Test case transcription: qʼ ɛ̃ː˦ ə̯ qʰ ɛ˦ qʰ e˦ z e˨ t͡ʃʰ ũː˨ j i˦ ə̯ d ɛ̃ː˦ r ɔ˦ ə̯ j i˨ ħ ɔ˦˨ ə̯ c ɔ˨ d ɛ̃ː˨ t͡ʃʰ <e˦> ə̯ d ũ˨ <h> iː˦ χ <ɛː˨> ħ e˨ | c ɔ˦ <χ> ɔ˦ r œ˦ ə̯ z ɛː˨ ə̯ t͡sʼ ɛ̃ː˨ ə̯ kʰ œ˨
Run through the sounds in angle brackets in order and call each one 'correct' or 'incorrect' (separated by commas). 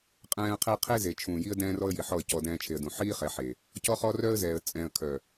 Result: incorrect, incorrect, incorrect, correct